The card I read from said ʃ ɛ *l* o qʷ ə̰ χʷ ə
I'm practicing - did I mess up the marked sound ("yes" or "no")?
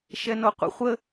yes